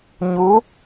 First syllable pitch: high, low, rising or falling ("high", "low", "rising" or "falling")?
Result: rising